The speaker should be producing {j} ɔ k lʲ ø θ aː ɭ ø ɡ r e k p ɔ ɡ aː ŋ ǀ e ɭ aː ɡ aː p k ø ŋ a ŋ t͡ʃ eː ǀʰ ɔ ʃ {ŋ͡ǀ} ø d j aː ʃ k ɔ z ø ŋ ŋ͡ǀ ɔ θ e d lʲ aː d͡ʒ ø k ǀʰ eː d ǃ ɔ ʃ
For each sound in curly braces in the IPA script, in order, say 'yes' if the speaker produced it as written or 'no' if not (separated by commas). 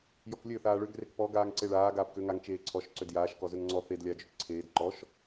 yes, no